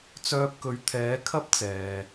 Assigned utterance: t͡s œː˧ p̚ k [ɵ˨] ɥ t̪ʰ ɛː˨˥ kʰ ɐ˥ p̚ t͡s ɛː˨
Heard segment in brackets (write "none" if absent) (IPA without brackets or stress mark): ɵ˨